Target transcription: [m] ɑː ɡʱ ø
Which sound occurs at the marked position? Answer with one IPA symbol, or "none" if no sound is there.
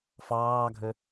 f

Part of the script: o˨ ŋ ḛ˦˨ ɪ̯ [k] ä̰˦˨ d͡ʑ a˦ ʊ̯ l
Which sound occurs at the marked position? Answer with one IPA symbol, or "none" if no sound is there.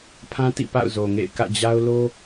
k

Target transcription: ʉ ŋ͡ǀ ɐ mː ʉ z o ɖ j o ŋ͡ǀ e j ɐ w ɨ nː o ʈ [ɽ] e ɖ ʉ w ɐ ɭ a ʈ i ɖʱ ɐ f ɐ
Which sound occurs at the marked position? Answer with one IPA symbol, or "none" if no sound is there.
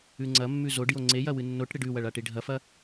ɽ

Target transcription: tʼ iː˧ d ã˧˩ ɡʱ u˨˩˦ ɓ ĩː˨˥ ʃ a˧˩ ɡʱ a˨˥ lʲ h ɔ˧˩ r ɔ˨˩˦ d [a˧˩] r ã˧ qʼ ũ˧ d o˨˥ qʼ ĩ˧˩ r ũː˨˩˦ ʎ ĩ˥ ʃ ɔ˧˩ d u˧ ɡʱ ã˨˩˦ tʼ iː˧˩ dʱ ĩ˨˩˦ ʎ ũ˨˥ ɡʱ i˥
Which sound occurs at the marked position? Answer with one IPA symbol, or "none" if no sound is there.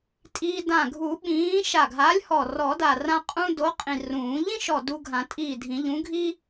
a˧˩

